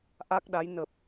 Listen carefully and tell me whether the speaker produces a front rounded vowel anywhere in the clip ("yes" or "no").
no